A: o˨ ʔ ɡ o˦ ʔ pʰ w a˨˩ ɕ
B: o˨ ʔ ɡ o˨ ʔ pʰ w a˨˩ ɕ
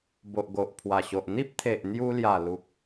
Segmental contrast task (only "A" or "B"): B